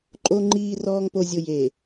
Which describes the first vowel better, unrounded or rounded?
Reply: rounded